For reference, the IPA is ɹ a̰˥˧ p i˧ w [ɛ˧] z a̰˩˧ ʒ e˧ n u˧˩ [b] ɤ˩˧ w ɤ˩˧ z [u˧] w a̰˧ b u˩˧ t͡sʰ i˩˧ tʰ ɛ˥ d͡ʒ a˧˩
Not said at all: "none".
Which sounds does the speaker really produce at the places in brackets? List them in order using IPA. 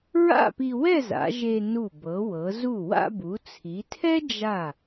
ɛ˥˧, b, u˧˩

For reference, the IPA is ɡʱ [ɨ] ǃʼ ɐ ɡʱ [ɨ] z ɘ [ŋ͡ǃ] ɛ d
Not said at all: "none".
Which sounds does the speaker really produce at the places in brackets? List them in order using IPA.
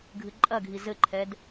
ɨ, i, ǃʰ

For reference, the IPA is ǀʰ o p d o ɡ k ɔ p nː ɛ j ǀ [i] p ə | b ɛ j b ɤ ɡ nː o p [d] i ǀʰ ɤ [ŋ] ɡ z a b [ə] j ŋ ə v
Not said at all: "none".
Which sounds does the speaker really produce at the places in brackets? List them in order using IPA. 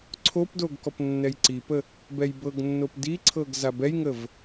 i, d, none, ɛ

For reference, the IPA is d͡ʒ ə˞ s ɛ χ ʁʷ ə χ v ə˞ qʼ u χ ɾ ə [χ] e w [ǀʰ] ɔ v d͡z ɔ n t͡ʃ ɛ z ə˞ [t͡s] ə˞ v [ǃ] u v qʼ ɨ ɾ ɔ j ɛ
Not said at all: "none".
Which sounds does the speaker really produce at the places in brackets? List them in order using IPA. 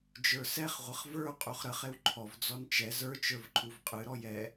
χ, ǃʰ, t͡ʃ, ǃʰ

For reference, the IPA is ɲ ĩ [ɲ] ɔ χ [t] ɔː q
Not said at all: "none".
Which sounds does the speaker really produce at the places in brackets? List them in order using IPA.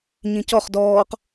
c, d

